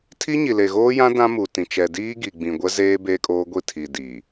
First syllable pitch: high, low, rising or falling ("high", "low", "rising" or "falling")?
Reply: high